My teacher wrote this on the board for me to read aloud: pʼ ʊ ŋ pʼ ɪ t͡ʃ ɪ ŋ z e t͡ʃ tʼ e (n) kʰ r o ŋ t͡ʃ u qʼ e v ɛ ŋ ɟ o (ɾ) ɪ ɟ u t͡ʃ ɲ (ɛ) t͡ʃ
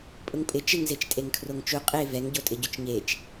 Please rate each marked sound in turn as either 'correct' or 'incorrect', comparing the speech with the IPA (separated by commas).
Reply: incorrect, incorrect, incorrect